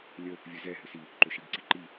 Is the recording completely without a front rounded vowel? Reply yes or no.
no